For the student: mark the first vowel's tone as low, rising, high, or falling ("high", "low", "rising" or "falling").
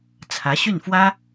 rising